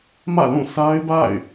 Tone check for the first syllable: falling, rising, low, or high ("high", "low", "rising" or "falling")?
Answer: falling